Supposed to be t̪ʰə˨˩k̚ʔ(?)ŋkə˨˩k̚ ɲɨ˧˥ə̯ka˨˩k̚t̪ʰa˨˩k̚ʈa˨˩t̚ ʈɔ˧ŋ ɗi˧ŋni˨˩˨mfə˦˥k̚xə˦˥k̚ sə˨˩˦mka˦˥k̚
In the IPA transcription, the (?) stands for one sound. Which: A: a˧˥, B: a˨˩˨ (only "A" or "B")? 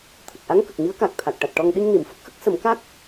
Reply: A